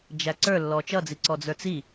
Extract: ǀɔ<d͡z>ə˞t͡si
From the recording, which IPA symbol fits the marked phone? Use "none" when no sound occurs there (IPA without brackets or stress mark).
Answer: d͡z